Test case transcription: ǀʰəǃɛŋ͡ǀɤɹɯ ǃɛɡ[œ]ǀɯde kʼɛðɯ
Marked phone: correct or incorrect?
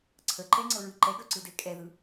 correct